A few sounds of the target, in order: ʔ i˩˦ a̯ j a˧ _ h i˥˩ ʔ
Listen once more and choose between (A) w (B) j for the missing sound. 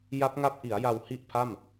A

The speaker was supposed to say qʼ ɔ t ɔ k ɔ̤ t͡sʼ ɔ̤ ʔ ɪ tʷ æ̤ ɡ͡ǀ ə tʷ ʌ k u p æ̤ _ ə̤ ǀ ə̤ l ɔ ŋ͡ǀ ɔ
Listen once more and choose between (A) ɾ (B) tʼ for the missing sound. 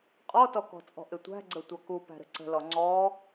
A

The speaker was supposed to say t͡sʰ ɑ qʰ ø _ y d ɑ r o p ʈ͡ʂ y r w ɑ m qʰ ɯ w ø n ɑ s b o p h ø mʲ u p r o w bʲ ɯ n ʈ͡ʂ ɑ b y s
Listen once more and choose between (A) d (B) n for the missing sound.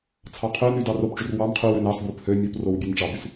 B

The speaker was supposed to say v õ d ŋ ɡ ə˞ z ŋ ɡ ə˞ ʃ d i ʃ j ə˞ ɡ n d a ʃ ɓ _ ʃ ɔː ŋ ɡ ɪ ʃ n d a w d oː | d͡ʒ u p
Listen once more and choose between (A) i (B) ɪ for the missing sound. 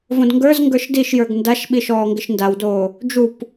A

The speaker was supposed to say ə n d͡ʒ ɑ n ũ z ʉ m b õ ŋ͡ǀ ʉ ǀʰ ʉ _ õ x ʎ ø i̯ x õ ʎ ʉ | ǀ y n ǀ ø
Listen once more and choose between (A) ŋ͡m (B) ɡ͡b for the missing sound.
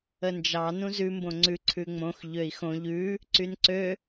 A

